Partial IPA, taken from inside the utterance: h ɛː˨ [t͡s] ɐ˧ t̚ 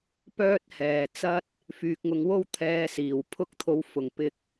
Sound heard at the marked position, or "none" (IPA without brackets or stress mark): t͡s